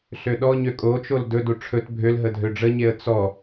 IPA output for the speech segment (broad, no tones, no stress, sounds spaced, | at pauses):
ɬ ø ɗ ɔ ɲ ø kʼ o t͡ʃ o l d ɵ d u ʈ͡ʂʰ ɵ t bʱ ø l ɦ ə dʱ ø ɖ͡ʐ ə ɲ e ə̯ t͡s ɔ